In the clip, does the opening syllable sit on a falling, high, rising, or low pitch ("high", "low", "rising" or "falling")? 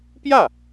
falling